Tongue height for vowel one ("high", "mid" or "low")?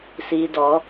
high